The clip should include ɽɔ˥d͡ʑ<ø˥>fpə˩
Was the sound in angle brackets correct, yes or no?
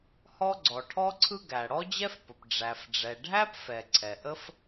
no